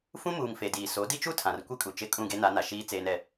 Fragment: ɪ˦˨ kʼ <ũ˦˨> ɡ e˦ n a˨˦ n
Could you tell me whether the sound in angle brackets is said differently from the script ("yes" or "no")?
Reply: no